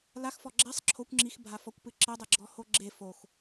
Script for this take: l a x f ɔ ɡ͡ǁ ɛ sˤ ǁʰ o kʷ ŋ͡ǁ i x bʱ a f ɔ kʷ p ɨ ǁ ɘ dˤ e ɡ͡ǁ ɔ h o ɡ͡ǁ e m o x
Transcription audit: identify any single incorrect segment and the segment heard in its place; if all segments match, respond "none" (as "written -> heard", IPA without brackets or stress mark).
m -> f